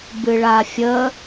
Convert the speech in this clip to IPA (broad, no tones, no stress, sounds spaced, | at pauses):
b ɨ ɭ a fʲ ə